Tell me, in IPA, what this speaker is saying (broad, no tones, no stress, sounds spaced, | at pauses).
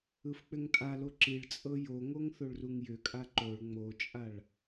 ɯ f k͡p ʏ ŋ tʼ a l o ǁ i ɭ t͡sʼ ɤ j o ŋ o ŋ θ o ɭ r u ŋ j ʏ kʼ a ǃ o ɭ ŋ͡m o t͡ʃʼ a ɭ